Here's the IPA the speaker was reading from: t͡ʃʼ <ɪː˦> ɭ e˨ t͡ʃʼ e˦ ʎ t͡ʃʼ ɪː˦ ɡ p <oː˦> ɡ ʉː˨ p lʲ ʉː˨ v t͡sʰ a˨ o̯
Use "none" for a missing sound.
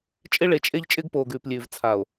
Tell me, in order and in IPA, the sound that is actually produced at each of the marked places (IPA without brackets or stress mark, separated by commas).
ɪ˦, oː˨